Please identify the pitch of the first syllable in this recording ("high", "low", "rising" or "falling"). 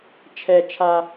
low